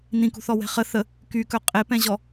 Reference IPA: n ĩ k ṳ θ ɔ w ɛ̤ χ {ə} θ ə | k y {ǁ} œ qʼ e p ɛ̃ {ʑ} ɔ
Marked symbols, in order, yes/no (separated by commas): yes, no, yes